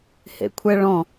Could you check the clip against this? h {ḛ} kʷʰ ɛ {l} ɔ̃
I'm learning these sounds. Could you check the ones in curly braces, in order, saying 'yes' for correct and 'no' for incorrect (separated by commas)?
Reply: yes, no